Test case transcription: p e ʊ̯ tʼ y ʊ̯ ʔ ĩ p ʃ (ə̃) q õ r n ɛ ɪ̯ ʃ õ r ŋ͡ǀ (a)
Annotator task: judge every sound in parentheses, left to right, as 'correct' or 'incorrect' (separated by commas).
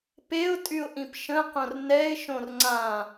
correct, incorrect